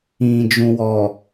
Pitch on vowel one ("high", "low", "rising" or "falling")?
low